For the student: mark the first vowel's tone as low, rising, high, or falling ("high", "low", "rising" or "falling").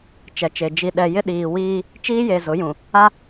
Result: low